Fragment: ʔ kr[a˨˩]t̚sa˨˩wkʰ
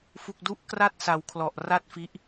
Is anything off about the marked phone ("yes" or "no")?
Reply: yes